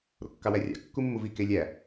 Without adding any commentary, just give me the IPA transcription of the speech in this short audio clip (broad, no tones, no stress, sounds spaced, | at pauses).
ɾ o̰ kː ɑ w æ rʲ ɑ̰ kː u mː u v i k e lʲ æ